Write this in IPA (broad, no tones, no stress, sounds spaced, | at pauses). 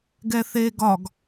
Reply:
ɡ ɛ θ eː ɡ ɒ ɡ